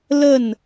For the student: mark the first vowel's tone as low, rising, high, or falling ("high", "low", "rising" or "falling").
falling